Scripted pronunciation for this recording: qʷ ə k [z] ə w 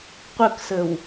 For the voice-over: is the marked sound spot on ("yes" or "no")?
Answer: no